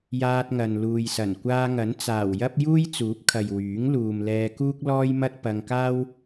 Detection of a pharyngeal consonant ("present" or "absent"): absent